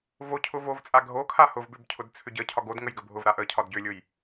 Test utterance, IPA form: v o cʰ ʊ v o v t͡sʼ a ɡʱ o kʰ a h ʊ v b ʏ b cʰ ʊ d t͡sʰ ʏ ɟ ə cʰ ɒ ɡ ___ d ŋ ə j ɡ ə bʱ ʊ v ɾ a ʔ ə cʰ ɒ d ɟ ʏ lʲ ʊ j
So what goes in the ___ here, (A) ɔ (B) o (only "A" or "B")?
B